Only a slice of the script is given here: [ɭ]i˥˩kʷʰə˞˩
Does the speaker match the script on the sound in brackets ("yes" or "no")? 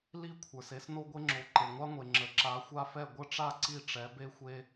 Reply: no